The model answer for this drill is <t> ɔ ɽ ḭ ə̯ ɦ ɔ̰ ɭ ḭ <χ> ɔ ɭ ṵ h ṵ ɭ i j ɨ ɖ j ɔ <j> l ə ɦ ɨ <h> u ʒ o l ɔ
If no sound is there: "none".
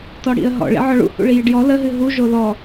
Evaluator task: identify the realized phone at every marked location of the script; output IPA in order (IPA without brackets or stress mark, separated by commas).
t, ʕ, none, ɦ